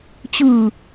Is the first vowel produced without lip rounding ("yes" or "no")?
yes